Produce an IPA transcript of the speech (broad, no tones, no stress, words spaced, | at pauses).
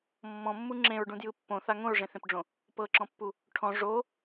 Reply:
mːɔ̃mːu ŋ͡ǁẽɹɖũdjɯ pːõθa ŋõɹʐẽθẽpɖ͡ʐõ | pɤǁɔ̃pːu | ʈʰɔ̃ ʐo